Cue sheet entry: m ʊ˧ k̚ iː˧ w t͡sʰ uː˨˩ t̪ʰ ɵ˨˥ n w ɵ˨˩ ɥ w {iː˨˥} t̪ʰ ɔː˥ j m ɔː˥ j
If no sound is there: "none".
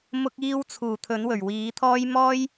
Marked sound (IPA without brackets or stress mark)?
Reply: iː˨˥